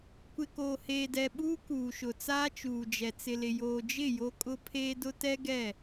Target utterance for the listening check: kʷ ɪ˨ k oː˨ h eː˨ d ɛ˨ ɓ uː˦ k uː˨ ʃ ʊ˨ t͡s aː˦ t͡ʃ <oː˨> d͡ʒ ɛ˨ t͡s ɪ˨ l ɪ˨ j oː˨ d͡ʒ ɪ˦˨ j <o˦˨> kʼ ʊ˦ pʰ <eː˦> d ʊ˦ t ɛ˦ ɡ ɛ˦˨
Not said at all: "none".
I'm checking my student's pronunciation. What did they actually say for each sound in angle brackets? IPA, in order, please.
uː˨, o˦, eː˦

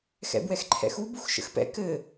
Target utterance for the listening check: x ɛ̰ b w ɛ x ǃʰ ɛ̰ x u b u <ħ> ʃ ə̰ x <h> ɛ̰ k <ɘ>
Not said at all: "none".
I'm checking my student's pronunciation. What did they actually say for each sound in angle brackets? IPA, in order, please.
x, p, ɘ

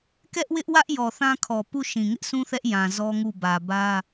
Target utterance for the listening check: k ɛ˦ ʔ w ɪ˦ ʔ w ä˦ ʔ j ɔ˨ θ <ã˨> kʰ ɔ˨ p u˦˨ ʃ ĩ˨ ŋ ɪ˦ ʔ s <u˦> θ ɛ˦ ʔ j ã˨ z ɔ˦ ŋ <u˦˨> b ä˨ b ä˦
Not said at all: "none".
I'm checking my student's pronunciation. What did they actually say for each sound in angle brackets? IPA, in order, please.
ã˦, ũ˦, u˦˨

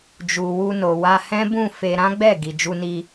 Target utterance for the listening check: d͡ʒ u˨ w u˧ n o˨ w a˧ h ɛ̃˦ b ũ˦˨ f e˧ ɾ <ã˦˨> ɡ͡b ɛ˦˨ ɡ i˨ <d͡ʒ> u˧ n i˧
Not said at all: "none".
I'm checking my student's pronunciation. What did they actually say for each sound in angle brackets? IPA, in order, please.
ã˦, d͡ʒ

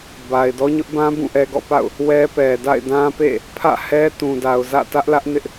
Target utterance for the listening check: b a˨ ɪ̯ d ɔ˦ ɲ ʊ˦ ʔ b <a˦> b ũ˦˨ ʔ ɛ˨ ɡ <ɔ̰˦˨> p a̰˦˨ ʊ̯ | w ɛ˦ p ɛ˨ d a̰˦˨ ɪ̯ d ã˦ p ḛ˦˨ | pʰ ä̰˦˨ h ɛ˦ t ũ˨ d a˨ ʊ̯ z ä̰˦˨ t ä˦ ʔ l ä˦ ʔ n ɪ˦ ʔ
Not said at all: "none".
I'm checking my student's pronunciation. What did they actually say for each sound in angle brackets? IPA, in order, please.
ã˦, ɔ̰˦˨

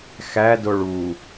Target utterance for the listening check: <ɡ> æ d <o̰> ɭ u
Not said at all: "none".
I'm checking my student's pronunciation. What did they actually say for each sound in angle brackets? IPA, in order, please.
x, o

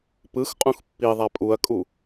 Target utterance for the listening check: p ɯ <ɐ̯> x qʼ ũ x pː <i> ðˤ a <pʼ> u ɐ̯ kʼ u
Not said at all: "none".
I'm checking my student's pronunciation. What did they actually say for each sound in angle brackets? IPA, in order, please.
none, i, pʼ

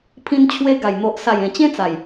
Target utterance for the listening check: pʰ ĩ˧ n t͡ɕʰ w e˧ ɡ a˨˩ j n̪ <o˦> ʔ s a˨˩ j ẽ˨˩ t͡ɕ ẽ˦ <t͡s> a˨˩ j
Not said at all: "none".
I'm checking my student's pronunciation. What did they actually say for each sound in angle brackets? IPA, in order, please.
o˨, t͡s

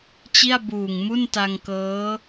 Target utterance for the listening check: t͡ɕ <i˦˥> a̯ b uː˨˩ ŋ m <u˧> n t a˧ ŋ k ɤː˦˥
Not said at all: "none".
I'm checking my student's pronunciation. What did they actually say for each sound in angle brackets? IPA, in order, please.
i˥˩, u˥˩

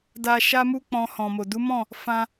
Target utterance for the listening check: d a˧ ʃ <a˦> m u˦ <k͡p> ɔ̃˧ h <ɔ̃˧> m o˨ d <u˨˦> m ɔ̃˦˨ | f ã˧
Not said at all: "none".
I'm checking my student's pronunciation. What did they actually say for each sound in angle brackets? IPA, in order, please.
a˦, k͡p, ɔ̃˨, u˨˦

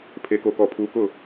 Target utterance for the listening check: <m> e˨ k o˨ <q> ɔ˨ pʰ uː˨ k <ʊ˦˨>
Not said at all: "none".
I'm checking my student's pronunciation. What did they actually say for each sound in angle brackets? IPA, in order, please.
pʰ, k, ʊ˦˨

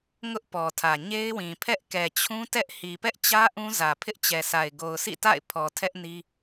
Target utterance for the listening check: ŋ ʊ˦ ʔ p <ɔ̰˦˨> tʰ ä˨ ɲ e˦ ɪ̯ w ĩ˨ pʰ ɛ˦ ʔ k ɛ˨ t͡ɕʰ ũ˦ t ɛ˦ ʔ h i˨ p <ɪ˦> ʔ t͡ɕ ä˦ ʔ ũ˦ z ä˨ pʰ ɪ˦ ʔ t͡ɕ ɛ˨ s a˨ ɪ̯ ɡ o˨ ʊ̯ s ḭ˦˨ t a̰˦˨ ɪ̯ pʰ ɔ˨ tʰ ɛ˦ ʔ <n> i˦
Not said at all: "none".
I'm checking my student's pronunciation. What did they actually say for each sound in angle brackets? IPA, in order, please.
ɔ˨, ɛ˦, n

